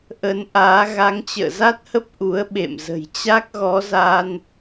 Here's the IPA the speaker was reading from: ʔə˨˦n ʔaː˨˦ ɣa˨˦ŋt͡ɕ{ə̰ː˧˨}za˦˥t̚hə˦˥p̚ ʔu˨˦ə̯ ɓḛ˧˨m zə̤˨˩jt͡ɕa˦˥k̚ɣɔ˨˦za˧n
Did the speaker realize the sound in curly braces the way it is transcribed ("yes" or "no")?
yes